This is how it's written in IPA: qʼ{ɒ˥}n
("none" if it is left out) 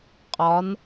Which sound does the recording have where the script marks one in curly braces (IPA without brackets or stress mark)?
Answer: ɒ˩˧